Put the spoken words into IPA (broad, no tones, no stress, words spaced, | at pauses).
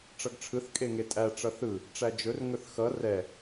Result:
ʈ͡ʂʌɡʈ͡ʂʰɯθ kʼeŋetʼæ ʈ͡ʂʌθɯ | ʈ͡ʂæd͡ʒɵr ŋɵθxʌ rɛ